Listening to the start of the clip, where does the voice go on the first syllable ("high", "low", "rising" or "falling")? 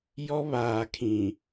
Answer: high